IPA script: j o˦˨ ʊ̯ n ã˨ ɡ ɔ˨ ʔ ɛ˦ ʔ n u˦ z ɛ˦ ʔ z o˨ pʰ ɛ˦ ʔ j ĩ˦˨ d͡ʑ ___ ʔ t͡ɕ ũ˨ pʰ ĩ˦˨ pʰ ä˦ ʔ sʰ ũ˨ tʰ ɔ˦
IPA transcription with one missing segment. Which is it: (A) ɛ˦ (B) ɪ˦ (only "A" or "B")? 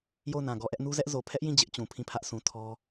B